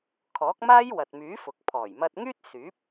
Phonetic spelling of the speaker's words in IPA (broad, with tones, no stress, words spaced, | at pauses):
kʰɔː˨˥k̚ maː˥jwɐ˨t̚myː˨˥fʊ˨k̚ pʰɔː˨˩jmɐ˧t̚ŋyː˥t̚ syː˨˥p̚